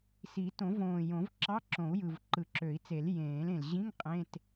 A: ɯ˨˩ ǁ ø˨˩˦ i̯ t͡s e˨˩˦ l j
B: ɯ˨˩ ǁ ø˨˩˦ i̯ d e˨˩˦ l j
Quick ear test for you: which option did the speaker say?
A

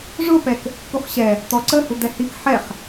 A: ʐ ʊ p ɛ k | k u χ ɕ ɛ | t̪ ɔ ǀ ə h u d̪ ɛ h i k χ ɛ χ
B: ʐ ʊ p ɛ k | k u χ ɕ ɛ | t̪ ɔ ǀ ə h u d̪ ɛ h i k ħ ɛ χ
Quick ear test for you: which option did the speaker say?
B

